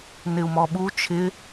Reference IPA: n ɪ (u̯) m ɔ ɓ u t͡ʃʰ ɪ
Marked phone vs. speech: correct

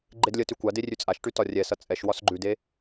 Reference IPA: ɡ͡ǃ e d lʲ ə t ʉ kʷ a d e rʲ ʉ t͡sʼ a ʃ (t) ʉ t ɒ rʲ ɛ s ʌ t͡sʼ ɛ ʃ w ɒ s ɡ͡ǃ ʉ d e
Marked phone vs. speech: incorrect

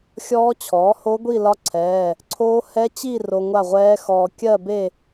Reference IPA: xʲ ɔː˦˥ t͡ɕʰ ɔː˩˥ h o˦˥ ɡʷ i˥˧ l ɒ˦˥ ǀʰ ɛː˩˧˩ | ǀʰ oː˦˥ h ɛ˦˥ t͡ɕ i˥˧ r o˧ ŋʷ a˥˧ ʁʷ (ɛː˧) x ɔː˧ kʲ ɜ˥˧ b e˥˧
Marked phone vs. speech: incorrect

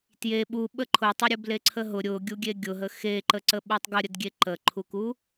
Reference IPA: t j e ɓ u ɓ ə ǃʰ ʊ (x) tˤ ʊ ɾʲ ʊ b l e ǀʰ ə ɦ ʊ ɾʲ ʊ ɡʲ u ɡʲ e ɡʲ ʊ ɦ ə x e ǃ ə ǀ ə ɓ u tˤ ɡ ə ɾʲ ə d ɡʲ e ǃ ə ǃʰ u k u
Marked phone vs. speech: incorrect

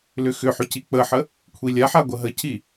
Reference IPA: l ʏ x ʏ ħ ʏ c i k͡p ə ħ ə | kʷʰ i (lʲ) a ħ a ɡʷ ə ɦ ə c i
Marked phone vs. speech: correct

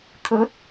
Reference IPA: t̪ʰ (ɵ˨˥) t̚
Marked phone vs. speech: correct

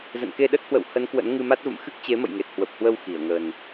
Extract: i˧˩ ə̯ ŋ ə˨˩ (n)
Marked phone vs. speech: correct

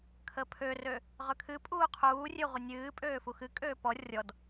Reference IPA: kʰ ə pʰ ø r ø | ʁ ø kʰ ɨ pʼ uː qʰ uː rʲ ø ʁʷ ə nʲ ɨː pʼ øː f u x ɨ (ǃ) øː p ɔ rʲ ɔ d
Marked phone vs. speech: incorrect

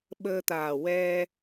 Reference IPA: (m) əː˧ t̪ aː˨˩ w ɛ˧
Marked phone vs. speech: incorrect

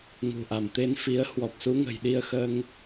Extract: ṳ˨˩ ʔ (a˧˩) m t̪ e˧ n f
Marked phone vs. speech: correct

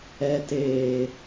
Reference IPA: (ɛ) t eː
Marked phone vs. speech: correct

